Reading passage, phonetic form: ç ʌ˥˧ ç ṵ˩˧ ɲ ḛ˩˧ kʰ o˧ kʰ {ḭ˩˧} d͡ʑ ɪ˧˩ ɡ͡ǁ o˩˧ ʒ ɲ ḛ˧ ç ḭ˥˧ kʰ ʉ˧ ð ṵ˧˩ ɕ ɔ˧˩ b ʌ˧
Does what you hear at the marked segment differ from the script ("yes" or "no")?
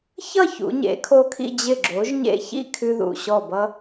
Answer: yes